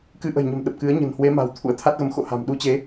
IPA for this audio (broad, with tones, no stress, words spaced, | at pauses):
kɨ˧ʔə̤˨˩jɲə̤˨˩m ɗə˨˩p̚kɨ˨˦ə̯ ɲə̤˨˩nhwe˨˦ma̤˨˩w t̪ʰṵ˧˥ə̯t̪ʰa˦˥t̚ɣə˨˦m xo̰˧˨ha̤˨˩m ɗu˧t͡ɕe˨˦